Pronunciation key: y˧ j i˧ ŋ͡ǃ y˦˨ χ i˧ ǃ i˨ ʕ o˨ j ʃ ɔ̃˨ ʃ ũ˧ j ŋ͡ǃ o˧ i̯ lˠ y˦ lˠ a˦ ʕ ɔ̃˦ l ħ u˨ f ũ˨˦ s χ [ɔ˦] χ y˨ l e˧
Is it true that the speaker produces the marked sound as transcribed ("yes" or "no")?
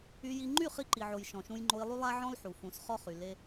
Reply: yes